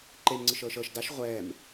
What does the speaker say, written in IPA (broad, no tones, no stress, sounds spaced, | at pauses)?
ǃ e m ŋ͡ǀ ɯ ʃ ɤː ʃ ɤ ʃ d a ʃ ʁʷ ɛː m